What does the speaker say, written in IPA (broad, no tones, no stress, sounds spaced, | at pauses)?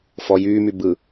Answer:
f ɔ j yː m y b ɯ